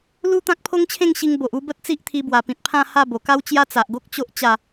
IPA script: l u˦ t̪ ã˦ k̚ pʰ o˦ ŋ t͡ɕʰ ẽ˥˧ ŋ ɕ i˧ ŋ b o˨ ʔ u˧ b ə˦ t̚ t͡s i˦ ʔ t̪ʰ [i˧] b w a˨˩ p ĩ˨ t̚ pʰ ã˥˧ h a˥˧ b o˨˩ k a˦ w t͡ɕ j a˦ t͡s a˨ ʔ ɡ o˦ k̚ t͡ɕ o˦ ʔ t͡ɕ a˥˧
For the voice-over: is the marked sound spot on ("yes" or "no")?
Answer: yes